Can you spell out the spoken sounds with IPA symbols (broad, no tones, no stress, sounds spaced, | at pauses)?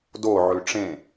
d o ʕ ʉ ʈ͡ʂ ẽ